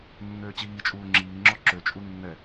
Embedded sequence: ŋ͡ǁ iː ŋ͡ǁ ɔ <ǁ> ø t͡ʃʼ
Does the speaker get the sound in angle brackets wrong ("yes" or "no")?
no